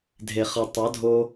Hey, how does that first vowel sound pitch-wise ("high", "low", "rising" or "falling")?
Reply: low